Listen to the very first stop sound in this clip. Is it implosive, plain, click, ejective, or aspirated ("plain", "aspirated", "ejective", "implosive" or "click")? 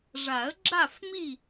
click